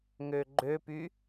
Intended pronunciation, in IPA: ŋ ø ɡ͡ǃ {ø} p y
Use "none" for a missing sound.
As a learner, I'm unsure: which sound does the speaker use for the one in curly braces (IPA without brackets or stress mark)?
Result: ø